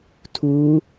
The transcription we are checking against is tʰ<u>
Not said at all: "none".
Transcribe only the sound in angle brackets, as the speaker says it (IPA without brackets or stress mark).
u